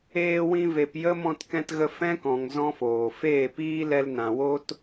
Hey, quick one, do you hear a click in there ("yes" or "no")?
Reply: no